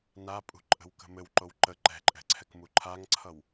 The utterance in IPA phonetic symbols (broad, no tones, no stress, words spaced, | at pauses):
napʼṳǃʼə̤wkə̤ mɘwǃow ǃə ǃɛ̤ǃʼɛ̤ǀʰɛkmu ǃʰaŋǀʰʌw